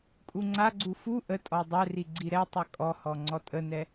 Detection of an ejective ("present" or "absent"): present